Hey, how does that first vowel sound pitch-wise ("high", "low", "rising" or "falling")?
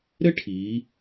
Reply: high